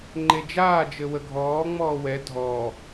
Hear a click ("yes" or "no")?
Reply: yes